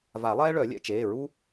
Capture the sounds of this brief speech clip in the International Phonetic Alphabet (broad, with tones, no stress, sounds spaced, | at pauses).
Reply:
v a˨˩˦ lˠ ɛː˥ ɭ œ˨˩˦ lʲ ɛ̰˦˨ t͡ʃ eː˩˧˩ ɹ u˥